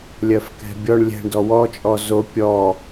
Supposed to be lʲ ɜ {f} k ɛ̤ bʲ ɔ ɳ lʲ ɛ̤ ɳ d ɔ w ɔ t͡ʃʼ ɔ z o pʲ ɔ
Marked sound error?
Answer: no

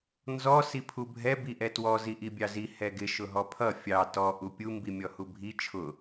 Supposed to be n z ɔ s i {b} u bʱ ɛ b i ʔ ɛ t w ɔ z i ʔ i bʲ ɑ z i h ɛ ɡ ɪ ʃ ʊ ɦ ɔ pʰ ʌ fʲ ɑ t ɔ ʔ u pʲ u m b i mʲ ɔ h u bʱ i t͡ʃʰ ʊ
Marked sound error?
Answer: yes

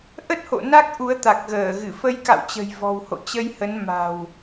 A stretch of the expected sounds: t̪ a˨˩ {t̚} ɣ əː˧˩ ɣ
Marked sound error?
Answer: yes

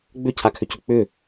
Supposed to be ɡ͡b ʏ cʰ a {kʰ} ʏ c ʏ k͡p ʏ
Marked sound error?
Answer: no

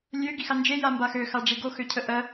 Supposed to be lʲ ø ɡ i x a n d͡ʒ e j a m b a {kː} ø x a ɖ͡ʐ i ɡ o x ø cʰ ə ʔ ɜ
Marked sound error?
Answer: yes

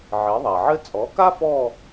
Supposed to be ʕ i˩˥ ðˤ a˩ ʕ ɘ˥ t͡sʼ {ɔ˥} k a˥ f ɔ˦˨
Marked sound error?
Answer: yes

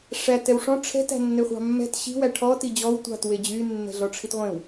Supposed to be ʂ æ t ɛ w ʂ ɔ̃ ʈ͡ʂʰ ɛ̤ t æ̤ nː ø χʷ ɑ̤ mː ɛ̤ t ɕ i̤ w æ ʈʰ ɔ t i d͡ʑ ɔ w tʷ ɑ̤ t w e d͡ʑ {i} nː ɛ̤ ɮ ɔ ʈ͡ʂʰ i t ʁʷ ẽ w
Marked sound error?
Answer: yes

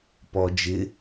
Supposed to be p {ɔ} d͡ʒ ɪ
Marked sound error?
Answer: no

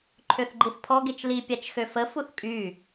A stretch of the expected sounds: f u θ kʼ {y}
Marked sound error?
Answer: no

